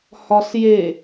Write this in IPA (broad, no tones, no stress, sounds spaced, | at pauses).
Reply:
h ɒ s j e